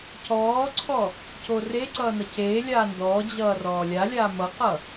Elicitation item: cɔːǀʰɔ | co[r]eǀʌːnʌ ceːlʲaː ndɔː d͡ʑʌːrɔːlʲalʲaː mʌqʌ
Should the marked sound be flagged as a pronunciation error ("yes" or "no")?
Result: no